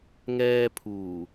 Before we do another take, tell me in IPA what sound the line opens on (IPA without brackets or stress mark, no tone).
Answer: ŋ